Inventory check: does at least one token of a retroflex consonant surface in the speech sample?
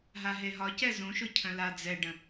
yes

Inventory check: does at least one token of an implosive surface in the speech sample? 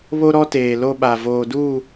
yes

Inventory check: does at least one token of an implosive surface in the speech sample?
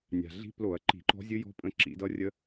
no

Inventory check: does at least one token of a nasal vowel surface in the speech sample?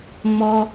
no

